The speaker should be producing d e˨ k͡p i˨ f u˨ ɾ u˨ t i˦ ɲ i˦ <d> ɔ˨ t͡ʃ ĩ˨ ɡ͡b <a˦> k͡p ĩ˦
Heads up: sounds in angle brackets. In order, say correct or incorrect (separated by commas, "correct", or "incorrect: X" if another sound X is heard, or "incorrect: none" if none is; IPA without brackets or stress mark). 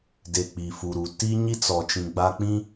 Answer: incorrect: t͡s, correct